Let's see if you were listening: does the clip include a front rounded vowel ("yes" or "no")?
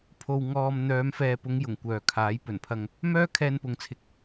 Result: yes